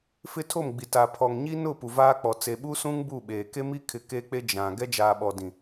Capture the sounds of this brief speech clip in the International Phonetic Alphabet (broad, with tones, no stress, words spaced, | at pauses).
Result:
fɪ˦tʰo˦˨mɡ͡bi˨ ta˨pʰɔ˨ŋɲi˦nʊ˦˨ pu˨vaː˦k͡pɔ˨ t͡se˨ɓu˦sũ˦ŋ bu˦˨ɓeː˨ ke˦mi˦kʰɪ˨ ke˦k͡pe˦ d͡ʒã˨ ɡɛ˦d͡ʒaː˨ ɓɔ˨dĩ˨